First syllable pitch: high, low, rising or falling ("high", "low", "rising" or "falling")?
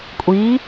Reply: rising